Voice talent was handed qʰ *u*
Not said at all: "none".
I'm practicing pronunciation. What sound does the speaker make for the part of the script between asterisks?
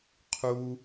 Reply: u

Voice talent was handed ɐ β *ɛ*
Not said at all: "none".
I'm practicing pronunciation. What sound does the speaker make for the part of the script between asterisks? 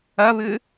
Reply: ɨ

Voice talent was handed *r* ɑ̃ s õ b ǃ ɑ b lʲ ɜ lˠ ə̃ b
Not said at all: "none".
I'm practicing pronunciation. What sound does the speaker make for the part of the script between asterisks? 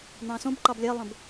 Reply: n̪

